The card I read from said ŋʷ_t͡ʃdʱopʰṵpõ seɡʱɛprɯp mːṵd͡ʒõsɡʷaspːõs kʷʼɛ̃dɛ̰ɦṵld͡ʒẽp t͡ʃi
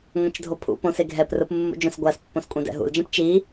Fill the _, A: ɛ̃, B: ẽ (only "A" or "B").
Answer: A